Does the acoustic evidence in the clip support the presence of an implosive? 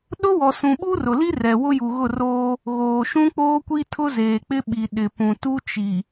yes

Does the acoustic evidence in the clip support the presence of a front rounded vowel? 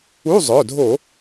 yes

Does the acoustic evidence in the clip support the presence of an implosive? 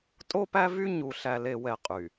no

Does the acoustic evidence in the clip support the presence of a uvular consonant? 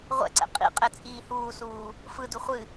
yes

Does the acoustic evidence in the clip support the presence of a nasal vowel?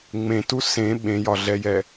yes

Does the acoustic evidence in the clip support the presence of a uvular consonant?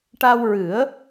no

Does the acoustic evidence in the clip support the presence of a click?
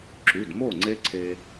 yes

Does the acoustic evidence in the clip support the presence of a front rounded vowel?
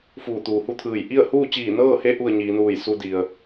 no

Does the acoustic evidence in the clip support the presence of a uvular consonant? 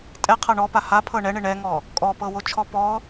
yes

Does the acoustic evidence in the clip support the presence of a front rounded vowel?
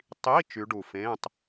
yes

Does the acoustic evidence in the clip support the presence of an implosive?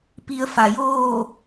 no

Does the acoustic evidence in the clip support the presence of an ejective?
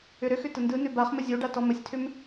no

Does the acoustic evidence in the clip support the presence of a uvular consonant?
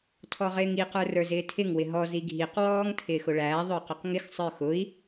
yes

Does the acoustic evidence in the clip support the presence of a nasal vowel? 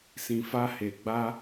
yes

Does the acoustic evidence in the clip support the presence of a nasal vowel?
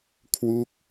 no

